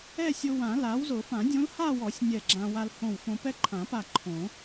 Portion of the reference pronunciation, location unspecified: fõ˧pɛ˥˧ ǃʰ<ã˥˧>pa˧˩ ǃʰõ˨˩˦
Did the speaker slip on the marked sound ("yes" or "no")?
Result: yes